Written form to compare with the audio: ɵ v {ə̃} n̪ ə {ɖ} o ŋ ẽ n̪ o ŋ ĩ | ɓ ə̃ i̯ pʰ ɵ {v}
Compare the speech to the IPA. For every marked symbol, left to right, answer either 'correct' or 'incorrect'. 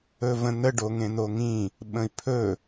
correct, correct, incorrect

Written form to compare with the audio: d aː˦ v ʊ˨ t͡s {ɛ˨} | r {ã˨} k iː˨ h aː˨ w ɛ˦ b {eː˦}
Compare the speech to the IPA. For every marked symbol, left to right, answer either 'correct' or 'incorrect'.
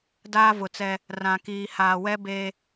incorrect, correct, correct

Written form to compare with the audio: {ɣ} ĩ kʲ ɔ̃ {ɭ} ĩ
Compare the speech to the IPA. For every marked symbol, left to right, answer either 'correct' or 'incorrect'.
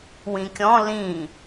incorrect, incorrect

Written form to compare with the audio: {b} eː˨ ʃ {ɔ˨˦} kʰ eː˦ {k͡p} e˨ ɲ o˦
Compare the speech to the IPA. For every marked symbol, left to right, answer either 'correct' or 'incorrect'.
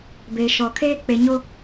correct, incorrect, correct

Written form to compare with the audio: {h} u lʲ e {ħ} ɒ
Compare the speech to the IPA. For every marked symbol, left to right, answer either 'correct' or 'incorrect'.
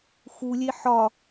incorrect, correct

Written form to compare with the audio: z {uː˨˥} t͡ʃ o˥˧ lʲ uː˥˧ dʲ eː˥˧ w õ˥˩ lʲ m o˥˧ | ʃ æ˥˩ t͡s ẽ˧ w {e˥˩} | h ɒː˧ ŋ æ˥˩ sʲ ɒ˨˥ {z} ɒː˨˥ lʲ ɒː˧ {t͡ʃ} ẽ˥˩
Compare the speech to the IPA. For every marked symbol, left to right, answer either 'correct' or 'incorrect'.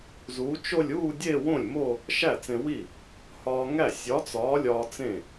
correct, incorrect, incorrect, incorrect

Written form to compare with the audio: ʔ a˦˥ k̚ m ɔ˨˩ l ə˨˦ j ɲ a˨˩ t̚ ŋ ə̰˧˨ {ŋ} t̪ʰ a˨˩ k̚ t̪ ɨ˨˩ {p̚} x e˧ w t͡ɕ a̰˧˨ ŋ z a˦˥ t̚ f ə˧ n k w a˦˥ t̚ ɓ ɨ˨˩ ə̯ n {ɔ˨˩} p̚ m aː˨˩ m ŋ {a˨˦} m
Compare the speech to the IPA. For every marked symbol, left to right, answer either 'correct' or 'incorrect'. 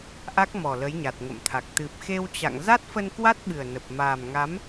incorrect, correct, incorrect, correct

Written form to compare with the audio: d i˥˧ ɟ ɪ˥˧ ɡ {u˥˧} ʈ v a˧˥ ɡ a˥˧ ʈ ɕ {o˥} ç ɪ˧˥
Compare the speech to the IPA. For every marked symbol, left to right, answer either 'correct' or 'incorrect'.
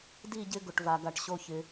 incorrect, correct

